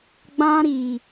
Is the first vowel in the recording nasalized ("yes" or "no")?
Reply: yes